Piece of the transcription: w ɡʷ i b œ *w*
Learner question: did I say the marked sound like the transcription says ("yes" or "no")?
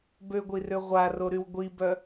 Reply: no